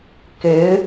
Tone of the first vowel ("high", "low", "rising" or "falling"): rising